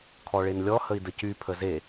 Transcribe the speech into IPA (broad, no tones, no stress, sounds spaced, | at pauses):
kʰ ɔ ɭ e n lʲ ɔ h ə i̯ d ə c y pʰ ə z e